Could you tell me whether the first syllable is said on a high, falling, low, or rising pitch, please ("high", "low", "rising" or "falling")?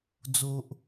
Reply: low